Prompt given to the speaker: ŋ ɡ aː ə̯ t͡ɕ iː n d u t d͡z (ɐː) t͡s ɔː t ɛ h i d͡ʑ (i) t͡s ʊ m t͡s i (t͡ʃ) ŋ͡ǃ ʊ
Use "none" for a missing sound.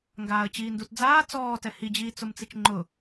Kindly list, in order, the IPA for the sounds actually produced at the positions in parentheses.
aː, iː, t͡ʃ

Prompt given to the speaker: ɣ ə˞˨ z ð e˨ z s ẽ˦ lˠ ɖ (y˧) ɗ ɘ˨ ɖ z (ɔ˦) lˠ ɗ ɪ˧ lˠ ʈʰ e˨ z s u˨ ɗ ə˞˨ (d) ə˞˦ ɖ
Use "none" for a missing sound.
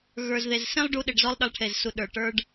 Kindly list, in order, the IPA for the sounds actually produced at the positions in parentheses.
u˧, ɔ˦, ʈ

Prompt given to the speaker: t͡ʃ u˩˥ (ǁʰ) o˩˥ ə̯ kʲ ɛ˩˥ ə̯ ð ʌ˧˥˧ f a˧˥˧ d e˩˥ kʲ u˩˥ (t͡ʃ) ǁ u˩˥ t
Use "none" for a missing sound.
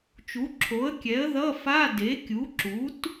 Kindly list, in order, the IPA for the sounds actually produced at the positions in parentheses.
ǁʰ, none

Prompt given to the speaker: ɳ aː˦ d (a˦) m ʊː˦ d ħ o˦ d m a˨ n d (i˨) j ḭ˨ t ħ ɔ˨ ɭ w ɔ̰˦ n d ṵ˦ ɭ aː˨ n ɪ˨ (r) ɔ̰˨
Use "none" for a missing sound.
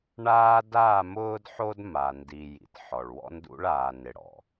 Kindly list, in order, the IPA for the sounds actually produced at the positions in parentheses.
a˦˨, i˨, ɽ

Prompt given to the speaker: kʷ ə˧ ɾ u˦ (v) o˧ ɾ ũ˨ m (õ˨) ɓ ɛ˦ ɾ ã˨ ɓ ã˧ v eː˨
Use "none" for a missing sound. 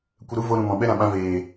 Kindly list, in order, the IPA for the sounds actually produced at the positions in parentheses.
v, ɔ̃˨

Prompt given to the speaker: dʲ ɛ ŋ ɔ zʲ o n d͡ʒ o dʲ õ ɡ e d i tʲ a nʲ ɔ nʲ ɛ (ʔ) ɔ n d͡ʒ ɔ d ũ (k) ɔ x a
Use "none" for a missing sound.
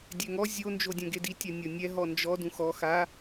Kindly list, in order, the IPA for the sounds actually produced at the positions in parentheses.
ɦ, x

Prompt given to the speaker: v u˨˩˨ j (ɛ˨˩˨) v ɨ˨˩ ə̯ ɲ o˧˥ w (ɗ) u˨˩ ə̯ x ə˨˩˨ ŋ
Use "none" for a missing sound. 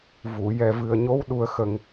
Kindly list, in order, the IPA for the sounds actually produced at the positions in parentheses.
ɛ˨˩, ɗ

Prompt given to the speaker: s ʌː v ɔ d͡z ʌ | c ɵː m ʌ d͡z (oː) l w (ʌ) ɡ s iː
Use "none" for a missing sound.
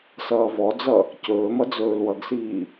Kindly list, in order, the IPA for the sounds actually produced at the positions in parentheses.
ɵː, ʌ

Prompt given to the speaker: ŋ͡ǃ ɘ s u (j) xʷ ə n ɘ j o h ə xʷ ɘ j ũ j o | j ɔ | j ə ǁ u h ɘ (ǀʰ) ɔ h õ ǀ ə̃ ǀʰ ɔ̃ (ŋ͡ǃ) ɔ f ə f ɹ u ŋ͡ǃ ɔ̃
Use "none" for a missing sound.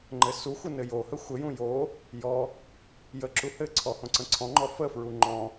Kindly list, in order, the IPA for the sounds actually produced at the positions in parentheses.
none, ǀʰ, ŋ͡ǃ

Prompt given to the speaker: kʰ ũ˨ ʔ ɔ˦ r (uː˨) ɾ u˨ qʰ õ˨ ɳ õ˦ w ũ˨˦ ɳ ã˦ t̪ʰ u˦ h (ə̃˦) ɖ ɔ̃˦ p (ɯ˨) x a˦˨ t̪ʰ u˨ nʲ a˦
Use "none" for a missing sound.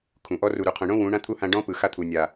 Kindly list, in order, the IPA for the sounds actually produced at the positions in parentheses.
u˨, ã˦, ɯ˨

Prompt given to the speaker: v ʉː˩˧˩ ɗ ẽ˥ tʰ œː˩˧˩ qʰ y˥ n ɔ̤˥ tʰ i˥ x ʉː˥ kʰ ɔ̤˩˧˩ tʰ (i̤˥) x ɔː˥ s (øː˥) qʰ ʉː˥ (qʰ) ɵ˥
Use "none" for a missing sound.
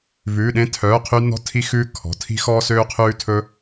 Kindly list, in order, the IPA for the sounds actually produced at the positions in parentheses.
i̤˥, øː˥, tʰ

